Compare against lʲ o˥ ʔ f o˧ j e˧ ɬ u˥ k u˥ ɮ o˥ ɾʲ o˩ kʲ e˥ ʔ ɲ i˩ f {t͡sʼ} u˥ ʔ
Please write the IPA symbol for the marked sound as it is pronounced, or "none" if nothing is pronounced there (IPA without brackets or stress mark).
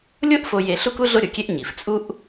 t͡sʼ